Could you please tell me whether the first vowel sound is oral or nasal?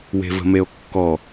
oral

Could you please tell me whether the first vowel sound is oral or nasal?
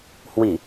oral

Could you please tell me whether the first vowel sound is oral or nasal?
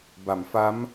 oral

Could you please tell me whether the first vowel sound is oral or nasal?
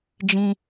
nasal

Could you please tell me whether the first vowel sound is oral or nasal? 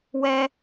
oral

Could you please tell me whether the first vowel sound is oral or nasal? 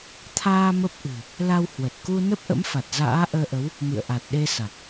oral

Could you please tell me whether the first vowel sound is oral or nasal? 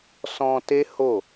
nasal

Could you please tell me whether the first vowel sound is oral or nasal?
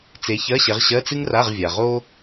oral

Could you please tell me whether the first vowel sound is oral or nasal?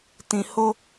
nasal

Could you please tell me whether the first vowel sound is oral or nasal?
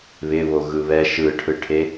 oral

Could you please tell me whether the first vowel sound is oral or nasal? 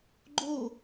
oral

